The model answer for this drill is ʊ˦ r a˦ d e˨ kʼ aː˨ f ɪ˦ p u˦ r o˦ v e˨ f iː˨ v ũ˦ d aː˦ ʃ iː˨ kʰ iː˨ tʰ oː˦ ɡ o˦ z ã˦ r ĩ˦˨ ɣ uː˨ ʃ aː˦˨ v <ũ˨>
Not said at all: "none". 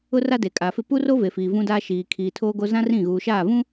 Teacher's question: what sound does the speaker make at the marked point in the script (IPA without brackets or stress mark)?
ũ˦